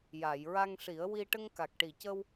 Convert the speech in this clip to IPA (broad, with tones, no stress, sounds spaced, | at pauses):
j a˨˩˨ j ɹ a˧ ŋ ʂ i˨˩˦ ə̯ w i˧ ʈ ə˧ ŋ k a˨˩ k̚ ʈ i˨˩ c ə˧ w